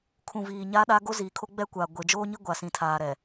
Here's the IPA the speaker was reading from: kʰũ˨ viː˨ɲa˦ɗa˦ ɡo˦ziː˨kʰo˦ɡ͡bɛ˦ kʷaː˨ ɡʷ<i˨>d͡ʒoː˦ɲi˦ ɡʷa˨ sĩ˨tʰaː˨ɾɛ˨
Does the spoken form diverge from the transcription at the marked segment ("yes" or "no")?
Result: yes